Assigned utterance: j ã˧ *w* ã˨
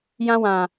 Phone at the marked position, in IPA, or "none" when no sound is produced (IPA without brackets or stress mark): w